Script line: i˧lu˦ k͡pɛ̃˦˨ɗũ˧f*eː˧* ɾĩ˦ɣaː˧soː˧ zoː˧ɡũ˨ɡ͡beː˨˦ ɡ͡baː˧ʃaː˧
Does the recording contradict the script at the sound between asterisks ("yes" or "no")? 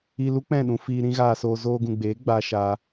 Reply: yes